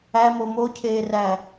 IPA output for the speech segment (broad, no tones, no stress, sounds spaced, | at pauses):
æ m o m o cʰ eː r æ